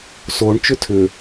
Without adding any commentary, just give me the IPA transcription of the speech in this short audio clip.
s o ɳ t͡ʃ ʏ tʰ ʏ

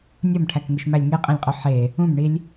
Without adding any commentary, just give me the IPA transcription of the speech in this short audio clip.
nʲ o m ʈʰ æ k ŋ u ʃ m æ lʲ ŋ e qʼ ĩ lʲ qʼ o ħ e | ũ m ɳ i lʲ

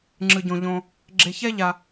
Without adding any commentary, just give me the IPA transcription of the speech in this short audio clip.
ŋ͡ǁ ɯ˨ ɟ õ˨ ʎ õ˨ | ɡ͡ǁ e˨ ç ɛ˦ ʎ a˨

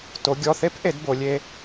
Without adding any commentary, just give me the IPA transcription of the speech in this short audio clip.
t o˩˧ ɡʲ ɔ˩˧˩ θ e˦˥ p ʔ e˩˧ d b o˩˧ lʲ e˦˥

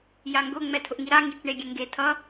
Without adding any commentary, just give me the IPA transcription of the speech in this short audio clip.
j a ŋ ɡ ʊ ŋ͡m ɛ tʰ ʊ ʔ ŋ i ɾ a ŋ i t͡ʃ ɳ e ɡʲ e ŋ ɡ e tʰ ʌ

